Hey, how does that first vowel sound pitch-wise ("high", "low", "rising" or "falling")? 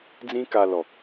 high